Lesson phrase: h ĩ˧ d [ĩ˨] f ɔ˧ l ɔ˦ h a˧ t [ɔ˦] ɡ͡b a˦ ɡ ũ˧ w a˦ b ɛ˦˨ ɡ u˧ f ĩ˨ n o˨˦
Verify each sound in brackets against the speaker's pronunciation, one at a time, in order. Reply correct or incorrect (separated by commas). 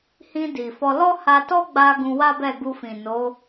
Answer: incorrect, correct